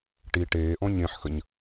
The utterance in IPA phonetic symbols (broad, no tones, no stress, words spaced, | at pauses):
ʈi ʈeːʔɔ̃ ɲẽħxəɲ